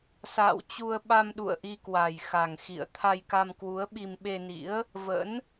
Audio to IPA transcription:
s a̰ː˧˨ w t͡ɕ u˧ ə̯ ɓ a˧ m ɗ ṵ˧˨ ə̯ ʔ i˧ k w a˨˩ j x a˨˩ ŋ x ḭ˧˨ ə̯ t̪ʰ a˧ j k a˧ m k w u˨˦ ə̯ ɓ i˧ m ɓ e˧ n ḭ˧˥ ə̯ | v ə̰˧˥ n

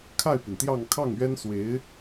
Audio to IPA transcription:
kʰ a˥˩ ɪ̯ p i˩ n t̪ j ɑ˥˧ ŋ kʰ ɑ˥˩ ŋ ɥ ɛ˥ n s w e˧˥ ɪ̯

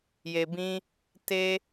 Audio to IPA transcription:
j e˨ b ĩ˧ | t e˧

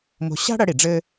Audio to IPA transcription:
m o̤˧ ɕ a̤˥ ɽ ɐ˧ ɽ i˩ ɖ͡ʐ ɘ˥

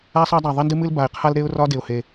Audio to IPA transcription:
a˦ sˤ a˦ dˤ a˨˩ ðˤ e˦ n d ɨ˦ m ɨ˦ l b a˨˩ ɪ̯ qʰ a˦ l ɾ e˦ ʊ̯ r ɒ˦ d e˨˩ ʊ̯ h e˨˩

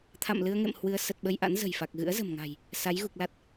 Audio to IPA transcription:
t̪ʰ a̰˧˨ m l ɨ˧ ə̯ ŋ ḛ˧˨ m h w ɨ˧ ə̯ s ə˨˩ t̚ ɓ ə˧ j ʔ a̰˧˥ n z ə̤˨˩ j f a˨˩ k̚ ɣ ɨ̰˧˥ ə̯ z ə̤˨˩ m ŋ a̤˨˩ j | s a˨˦ j ɣ u˨˩ k̚ l a˦˥ t̚

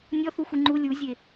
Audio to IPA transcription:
nʲ ɔ θ u xʷ i ŋ͡ǃ u lʲ u zʲ e

